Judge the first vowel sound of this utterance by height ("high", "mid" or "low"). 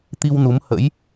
high